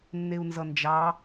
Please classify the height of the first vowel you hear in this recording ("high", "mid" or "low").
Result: mid